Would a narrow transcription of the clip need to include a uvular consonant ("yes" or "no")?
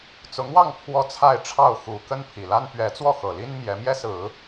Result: no